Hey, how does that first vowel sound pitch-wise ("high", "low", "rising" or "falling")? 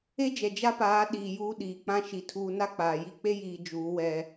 high